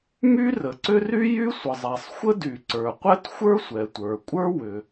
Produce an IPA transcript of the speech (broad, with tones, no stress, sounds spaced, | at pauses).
m y˥ r ə˩ ǀ ʏ˥ r y˥ j y˥ sʷ ə˩ zˤ ɛ˩ sˤ xʷ ə˥ d y˩ ǀ ə˞˩ qʷ ɛ˥ t xʷ ə˞˥ sʷ ɛ˩ tʷ ə˞˩ kʷʼ ə˞˥ w ʏ˩